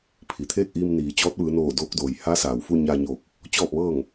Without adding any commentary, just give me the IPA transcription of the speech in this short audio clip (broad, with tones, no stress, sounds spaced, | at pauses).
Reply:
pʰ i˩ t̪ʰ eː˥˨ k̚ ʔ iː˧ m n iː˩ t͡ɕ ɔː˧˥ t̚ ʋ ɯː˩˧ n oː˧˩ d oː˧ k̚ d oː˩ j h a˧˥ s aː˩ w f u˥˨ ɲ a˧ ɲ oː˧˩ k̚ | t͡ɕ ɔː˥˨ p̚ ʋ ɤː˥˨ ŋ